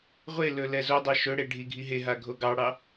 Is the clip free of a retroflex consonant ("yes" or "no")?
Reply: no